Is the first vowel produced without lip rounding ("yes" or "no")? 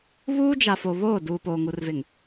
no